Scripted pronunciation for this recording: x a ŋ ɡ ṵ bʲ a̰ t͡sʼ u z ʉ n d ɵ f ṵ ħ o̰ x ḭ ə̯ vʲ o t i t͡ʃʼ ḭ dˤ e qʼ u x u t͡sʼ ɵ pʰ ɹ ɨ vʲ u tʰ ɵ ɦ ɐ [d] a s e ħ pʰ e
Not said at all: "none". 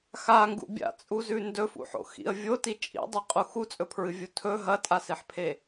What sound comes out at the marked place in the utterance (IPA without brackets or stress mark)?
tʼ